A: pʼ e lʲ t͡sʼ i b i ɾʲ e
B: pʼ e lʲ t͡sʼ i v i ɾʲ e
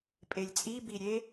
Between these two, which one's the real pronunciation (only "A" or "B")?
A